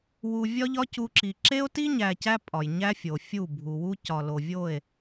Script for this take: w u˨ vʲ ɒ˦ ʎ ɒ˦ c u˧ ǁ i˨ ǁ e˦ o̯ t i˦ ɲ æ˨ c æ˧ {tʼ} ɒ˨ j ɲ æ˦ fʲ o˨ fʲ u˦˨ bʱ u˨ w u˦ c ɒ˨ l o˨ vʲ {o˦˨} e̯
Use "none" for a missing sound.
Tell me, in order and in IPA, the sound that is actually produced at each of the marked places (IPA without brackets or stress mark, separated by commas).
pʼ, o˦˨